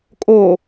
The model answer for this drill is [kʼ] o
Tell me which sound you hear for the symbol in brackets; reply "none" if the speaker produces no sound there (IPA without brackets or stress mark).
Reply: kʼ